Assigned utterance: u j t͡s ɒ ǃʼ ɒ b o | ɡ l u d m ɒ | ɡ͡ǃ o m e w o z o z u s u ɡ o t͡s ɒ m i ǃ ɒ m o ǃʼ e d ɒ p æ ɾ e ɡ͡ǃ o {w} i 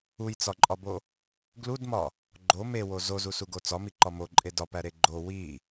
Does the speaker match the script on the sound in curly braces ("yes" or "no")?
yes